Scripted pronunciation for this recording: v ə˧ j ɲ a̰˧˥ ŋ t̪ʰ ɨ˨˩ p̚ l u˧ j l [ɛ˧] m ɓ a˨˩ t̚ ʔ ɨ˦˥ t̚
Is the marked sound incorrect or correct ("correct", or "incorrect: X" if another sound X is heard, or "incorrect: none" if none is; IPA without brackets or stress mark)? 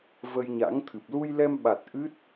correct